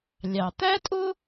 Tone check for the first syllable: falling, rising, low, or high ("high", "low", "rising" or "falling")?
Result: low